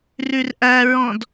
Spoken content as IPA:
rʉrʔæɹɔ̃d

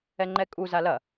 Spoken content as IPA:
ɛŋ͡ǃɛkʼu zalɐ

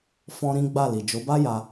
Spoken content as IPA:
fɔ̃˦ɾĩ˦ ɡ͡ba˦˨li˨ d͡ʒo˨˦ba˦ja˧

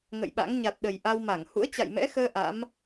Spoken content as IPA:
ŋə̰˧˨jɓa̰˧˥ŋ ɲa˨˩t̚ɗə˨˩j ʔa˧wma˧˩ŋ hṵ˧˥ə̯t͡ɕa̰˧˨jmɛ̰˧˥xəː˧ ʔa̰˧˥m

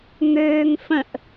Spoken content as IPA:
ŋøːŋfə̃ʔ

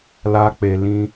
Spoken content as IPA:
la˦k͡pe˧ lĩ˦

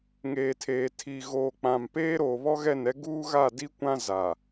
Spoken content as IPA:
ŋeː˨tʰeː˨tʰi˨ ɣoː˨k͡pã˨mpeː˦ ɾoː˨βɔ˦ɣɛ˦˨nɛ˦ ɡuː˦ɣa˦˨di˦kʷã˦ za˨

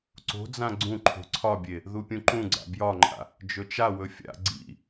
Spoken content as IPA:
ǀo̤d͡zã ɡ͡ǀũ ǃʰo̤ǀʰɒbʲe | ðupʲũǃũɡ͡ǀa̰ bjɒŋ͡ǃa̰ | d͡ʒɵt͡ʃawɵ fʲa̰ ɡ͡ǀḭ

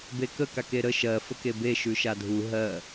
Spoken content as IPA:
bekə kakeɾə ʃɜ fəkebe ʃʉʃadʱu ɦɜ

